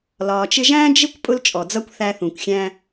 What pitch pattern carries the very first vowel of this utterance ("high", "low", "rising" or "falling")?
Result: low